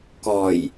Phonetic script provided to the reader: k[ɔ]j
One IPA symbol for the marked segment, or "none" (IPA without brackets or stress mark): ɔ